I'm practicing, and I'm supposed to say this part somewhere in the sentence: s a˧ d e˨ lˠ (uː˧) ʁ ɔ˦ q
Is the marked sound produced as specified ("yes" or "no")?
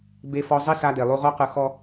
no